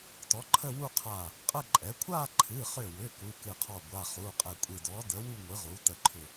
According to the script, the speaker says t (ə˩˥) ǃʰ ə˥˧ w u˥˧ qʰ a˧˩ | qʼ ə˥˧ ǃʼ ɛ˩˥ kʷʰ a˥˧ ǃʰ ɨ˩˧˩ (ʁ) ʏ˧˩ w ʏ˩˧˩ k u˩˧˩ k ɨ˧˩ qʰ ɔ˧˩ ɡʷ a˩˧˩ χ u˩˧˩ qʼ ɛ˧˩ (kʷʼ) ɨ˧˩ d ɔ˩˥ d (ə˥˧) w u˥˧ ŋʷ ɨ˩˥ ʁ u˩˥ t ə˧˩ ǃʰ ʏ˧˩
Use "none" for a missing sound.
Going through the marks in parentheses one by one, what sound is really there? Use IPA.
ɔ˩˥, χ, kʷʼ, ə˩˥

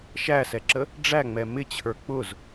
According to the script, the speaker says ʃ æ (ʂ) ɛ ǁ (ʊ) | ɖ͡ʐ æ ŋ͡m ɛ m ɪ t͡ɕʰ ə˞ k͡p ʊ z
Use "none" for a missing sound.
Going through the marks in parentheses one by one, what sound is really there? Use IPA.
s, ə

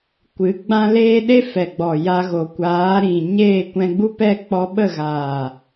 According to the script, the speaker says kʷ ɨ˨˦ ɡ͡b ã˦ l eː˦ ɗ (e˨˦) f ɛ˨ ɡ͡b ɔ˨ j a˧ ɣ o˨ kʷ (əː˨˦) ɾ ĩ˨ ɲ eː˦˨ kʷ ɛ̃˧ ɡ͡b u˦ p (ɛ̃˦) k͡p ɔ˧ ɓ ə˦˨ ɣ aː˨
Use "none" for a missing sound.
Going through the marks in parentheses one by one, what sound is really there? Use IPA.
e˦, aː˨˦, ɛ˦

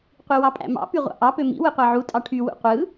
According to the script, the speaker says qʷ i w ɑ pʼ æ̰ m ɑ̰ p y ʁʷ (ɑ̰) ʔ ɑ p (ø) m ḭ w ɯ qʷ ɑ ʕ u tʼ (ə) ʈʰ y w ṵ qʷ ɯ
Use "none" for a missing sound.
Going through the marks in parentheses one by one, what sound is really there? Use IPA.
ɑ̰, ø, ɑ

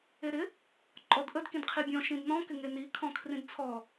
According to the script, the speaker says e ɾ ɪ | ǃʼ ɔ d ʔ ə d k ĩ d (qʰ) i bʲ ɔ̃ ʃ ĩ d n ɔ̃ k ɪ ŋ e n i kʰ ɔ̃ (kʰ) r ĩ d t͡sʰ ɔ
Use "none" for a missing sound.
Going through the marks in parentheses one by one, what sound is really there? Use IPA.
qʰ, kʰ

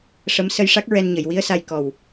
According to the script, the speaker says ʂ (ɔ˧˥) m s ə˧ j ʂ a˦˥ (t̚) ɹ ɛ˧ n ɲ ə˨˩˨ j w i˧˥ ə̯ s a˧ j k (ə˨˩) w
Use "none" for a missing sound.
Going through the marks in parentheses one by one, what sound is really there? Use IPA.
ə˧˥, k̚, ɔ˨˩

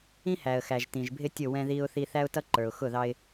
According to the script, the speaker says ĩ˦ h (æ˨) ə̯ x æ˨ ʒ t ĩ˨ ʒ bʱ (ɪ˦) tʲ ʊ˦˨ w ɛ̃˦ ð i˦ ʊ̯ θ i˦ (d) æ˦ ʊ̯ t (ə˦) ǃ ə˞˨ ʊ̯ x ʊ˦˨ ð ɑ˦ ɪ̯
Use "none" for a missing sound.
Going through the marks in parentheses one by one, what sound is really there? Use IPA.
æ˨, ɪ˦, θ, ʌ˦

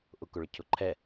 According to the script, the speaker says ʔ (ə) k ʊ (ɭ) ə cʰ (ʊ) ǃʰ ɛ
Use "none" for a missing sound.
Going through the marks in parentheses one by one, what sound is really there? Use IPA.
ʊ, ɭ, ʊ

